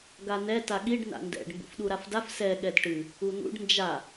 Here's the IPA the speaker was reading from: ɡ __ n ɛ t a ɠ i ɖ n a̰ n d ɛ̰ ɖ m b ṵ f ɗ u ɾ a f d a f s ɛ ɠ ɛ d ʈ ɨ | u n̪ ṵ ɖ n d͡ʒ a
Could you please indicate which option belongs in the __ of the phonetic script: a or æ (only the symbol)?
a